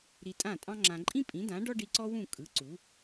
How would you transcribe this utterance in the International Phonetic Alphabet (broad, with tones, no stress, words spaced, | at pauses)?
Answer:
ɾi˧tʼã˥˩tʼɑ̃˥ŋ͡ǁã˧ ǃʼĩ˥pʼĩ˩˥dã˩˥ ɖɔ˥ɖi˧ǀɔ˥wũ˥˩ kʼɯ˩˥ ǀu˩˥